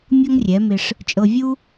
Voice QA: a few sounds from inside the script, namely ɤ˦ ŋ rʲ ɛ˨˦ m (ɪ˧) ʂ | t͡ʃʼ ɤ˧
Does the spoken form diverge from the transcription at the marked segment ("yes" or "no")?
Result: no